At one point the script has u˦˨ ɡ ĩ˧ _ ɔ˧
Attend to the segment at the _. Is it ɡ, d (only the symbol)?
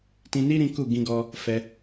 ɡ